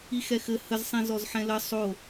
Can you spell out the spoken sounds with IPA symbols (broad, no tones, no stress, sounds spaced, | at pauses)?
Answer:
i x ɛ x ɘ h ə z sˤ ĩ z ɔ z ħ ɛ̃ l ə sˤ o